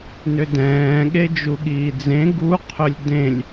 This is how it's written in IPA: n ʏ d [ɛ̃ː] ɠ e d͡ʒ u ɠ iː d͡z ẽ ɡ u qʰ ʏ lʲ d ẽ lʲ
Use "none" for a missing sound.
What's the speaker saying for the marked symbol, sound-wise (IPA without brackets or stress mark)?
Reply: ɛ̃ː